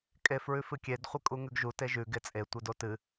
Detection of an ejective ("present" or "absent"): present